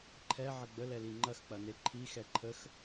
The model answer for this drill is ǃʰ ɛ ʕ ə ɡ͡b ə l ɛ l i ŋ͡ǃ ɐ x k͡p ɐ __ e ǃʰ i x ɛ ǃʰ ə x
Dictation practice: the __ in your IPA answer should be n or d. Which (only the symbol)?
n